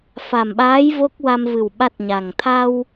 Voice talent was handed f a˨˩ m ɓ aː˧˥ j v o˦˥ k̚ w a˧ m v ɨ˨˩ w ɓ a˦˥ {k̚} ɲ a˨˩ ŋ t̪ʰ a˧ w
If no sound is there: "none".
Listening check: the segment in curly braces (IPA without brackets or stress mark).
t̚